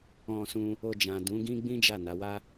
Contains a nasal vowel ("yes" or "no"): yes